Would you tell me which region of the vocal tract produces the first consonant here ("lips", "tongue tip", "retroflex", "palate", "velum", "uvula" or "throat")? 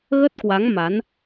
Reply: velum